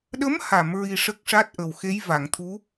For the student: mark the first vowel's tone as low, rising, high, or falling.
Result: rising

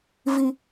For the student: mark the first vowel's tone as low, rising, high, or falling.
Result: high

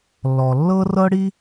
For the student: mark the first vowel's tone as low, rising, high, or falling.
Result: low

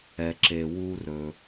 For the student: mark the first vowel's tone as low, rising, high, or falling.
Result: low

